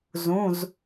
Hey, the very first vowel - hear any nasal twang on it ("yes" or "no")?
yes